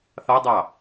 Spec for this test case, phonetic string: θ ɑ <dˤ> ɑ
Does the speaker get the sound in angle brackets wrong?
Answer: no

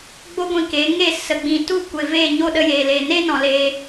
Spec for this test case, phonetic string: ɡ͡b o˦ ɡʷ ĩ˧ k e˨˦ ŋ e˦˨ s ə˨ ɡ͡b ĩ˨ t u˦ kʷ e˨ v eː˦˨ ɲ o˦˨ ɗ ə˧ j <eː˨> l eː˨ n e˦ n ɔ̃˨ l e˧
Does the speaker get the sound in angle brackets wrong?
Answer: no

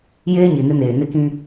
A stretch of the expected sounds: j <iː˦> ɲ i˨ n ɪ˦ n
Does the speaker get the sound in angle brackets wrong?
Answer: yes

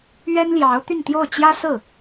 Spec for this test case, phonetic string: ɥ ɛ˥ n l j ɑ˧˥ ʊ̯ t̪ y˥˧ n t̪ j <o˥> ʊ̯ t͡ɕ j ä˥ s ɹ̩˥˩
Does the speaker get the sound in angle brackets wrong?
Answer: yes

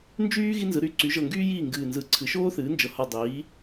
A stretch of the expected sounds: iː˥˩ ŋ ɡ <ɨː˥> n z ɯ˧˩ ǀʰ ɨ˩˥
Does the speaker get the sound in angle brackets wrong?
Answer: yes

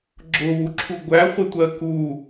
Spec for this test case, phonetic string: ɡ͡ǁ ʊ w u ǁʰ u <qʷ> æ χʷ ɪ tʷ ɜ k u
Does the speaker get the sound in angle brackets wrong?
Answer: yes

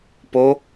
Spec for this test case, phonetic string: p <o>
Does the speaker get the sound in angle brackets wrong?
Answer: no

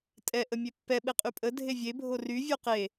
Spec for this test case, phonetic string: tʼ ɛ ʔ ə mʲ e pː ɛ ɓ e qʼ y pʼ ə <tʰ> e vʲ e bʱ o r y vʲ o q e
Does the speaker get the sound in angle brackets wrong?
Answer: yes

